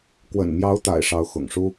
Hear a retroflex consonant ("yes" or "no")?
yes